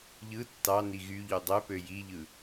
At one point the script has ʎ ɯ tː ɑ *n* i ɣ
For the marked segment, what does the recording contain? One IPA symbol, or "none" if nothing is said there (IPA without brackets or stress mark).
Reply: n